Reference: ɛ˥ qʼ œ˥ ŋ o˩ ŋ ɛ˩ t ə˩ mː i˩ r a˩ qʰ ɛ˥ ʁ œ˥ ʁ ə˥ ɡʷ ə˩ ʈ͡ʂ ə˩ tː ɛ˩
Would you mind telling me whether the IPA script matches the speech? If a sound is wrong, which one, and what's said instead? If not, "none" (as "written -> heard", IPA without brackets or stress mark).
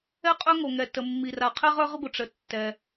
none